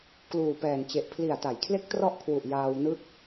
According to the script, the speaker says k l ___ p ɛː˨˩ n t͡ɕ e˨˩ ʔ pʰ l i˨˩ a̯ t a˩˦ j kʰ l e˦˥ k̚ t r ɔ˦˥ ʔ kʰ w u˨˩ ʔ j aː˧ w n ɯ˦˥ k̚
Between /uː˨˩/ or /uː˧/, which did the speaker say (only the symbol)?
uː˨˩